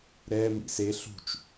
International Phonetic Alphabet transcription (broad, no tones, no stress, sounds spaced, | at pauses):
ɾ ɛ m ḭ s e ɬ ṳ t͡ʃ